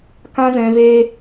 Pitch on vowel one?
high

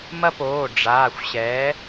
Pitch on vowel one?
high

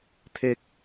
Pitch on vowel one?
high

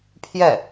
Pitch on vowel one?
falling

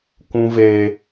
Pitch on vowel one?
high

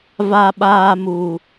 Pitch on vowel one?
low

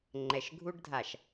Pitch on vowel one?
low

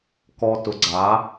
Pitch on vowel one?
low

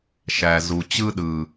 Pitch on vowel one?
low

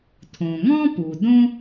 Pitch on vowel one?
low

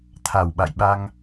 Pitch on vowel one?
low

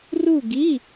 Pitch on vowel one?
falling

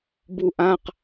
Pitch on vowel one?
falling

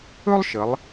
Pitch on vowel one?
high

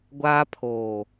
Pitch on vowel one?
high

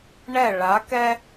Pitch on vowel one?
falling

